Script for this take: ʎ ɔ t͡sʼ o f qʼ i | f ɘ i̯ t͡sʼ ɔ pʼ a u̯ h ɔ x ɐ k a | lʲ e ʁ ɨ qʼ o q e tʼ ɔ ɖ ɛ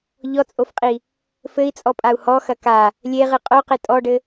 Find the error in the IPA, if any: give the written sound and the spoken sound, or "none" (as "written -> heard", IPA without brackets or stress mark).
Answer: ɛ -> ɘ